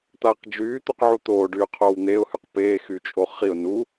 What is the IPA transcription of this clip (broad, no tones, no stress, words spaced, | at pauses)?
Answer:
t̪aːqd͡ʒyː t̪uqʕut̪oː ɖyːqʰoːwn̪eʊ̯ hyqpeː xyt͡ʃʼoχiʊ̯ nu